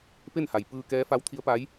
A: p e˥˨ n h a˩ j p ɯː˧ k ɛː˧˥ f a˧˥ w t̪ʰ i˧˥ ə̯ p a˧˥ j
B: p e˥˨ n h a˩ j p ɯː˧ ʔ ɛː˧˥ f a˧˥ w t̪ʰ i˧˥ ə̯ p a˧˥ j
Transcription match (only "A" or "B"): A